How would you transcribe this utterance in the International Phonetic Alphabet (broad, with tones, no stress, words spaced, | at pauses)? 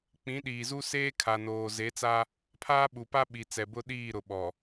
k͡pĩ˨˦ ɗiː˨zu˦ seː˦kʰa˨noː˨ ze˨˦t͡sa˦ | pʰaː˦ɓu˨pa˦ ɓi˨ t͡sɛ˨bʊ˦ɗiː˦˨ɾʊ˨ ɓɔ˨